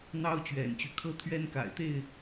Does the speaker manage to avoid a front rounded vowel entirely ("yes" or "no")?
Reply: no